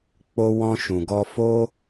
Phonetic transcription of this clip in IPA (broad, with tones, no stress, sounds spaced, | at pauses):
k͡p o˧ w ɔ̃˧ ʃ ũ˨ ɡ ɔ˧ f o˧